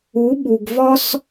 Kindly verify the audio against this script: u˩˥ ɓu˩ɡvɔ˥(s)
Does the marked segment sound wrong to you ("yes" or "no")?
no